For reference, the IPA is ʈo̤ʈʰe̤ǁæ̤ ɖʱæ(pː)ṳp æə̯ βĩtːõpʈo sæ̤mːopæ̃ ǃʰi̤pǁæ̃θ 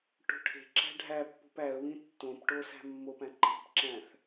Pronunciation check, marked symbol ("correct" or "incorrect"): correct